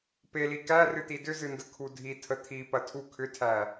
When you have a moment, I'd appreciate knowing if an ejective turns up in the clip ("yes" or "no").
no